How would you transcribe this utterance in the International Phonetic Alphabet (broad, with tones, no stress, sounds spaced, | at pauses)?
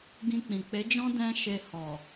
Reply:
ɡ ĩ˧ k͡p ĩ˨ k͡p e˨˦ d͡ʒ ɔ̃˦ d ɛ̃˦ ʃ e˧ h ɔ˨